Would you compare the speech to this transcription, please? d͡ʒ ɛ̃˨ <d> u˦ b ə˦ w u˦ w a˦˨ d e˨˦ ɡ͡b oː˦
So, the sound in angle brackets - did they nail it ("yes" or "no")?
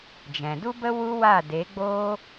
yes